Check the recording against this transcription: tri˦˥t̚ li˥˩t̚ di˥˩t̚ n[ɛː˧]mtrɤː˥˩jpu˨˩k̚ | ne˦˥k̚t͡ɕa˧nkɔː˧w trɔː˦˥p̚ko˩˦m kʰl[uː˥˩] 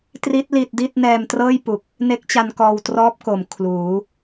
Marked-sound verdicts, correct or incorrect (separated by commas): correct, incorrect